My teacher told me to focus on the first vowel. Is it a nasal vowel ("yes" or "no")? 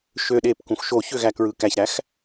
no